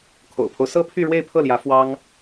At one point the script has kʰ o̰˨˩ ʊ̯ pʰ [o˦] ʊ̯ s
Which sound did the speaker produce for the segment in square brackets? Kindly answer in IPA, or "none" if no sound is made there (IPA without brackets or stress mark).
o˦